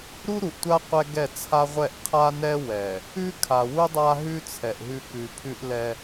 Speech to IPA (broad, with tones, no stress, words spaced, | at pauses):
ɾu˦ɾu˨ʔtʷa˦ qʷɛ˦ɡɛ˦˨ t͡sʰa˦ʁʷɛ˦˨ʔ qʰa˦nɛ˦ wɛ˨ | ʉ˦kʰa˨wu˦ dˤa˦ɦʉ˦ t͡sʰɛ˨ʔɦʉ˦ kʉ˨pʰʉ˦ʔlɛ˦